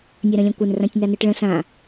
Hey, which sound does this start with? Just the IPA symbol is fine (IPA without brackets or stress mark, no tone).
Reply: nʲ